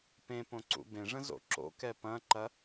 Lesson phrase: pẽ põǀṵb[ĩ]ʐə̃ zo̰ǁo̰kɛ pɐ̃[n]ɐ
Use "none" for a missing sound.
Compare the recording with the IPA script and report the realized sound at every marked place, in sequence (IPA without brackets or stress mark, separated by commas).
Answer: ẽ, ǃ